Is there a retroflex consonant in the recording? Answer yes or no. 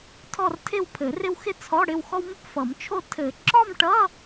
yes